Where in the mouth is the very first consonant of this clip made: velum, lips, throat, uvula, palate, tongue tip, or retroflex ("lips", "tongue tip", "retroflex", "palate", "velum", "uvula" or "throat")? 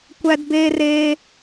velum